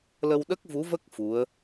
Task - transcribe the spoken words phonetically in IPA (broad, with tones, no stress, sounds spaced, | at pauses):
l ə˧ w ɗ ə˦˥ k̚ v u˧˥ v ə˦˥ k̚ f u˧˥ ə̯